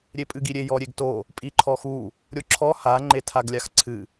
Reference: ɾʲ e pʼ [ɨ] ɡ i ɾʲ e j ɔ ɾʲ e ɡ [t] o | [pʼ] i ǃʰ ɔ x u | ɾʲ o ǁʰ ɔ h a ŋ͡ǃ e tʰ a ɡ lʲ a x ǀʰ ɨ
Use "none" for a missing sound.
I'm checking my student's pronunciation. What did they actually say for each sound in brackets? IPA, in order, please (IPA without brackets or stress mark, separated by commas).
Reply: ɨ, t, pʼ